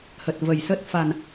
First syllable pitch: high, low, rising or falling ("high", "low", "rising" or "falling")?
low